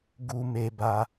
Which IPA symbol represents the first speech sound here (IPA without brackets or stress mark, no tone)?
ɡ